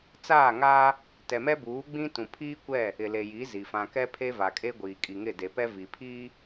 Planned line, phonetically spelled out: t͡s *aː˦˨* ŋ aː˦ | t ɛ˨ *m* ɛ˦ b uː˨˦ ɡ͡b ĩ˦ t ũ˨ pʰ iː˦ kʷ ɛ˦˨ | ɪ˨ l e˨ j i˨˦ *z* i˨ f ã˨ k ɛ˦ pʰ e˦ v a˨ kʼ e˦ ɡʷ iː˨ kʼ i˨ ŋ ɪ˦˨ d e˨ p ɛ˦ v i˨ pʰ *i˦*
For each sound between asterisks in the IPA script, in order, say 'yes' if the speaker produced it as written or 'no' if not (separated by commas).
yes, yes, yes, no